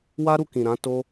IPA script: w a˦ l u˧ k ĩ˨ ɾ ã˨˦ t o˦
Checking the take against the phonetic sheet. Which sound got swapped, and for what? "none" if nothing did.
l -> ɾ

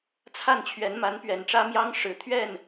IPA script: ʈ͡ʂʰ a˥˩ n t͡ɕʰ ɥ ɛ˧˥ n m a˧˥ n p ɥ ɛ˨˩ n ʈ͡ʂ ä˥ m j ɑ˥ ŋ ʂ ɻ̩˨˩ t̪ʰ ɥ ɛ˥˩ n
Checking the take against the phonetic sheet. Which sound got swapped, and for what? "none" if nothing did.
ʈ͡ʂʰ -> t͡sʰ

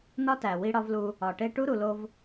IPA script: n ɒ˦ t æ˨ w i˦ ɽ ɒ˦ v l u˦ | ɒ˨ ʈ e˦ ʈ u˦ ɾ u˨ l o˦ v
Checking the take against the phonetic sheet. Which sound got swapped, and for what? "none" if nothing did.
none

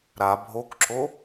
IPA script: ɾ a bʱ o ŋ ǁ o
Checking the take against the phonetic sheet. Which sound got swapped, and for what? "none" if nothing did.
ŋ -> k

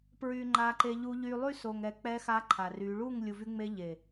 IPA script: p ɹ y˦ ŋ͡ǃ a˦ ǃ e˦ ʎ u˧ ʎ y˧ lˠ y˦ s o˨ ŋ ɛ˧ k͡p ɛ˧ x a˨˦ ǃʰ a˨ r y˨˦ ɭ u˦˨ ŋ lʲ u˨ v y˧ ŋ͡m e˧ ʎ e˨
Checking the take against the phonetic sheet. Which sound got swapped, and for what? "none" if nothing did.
none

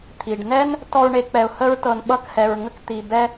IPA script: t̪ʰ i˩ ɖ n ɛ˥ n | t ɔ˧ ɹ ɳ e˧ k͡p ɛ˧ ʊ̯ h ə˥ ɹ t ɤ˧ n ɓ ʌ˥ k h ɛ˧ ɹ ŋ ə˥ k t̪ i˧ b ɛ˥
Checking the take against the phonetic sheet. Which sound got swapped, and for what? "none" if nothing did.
none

